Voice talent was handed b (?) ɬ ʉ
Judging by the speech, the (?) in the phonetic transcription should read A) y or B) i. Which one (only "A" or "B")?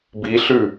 B